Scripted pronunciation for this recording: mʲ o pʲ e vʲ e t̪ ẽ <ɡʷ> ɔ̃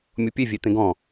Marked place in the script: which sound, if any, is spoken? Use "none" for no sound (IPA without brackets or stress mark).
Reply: ɡ